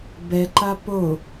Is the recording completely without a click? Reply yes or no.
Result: no